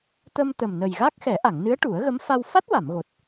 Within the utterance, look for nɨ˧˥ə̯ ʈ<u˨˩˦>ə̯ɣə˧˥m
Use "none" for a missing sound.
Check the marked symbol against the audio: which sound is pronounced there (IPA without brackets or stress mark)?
u˨˩˦